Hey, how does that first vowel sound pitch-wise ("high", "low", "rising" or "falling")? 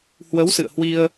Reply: rising